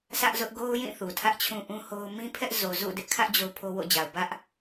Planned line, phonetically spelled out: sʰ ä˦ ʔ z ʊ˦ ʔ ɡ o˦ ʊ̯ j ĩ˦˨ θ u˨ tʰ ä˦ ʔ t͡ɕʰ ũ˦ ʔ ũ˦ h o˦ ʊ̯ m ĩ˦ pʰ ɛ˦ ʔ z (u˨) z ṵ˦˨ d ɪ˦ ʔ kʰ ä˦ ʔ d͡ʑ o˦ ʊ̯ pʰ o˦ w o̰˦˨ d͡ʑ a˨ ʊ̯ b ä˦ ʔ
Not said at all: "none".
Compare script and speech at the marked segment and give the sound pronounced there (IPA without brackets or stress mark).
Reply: o˨